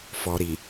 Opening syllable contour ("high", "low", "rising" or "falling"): low